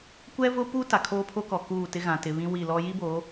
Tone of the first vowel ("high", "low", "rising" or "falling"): high